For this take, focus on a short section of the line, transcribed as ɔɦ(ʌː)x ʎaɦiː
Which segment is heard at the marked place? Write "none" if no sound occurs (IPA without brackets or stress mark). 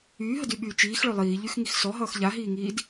ʌː